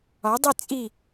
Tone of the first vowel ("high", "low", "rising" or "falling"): rising